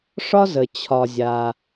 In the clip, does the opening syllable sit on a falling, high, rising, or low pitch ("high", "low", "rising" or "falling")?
high